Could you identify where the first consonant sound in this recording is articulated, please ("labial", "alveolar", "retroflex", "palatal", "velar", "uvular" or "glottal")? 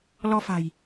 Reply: alveolar